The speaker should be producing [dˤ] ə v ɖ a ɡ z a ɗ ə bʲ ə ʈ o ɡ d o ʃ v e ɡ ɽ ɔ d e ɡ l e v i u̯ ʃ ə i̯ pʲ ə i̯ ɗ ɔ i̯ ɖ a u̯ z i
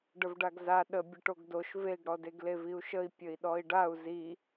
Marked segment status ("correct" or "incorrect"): incorrect